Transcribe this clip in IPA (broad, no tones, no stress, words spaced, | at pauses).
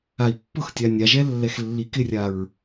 ai̯pːʊxtʲa nʲaʒɛ lːɛxlːikɪrʲaɹ